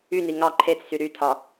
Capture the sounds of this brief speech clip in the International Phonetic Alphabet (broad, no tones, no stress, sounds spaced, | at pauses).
y n i ŋ ɑ ǃʰ e t͡s s y ɾ y tʰ ɒ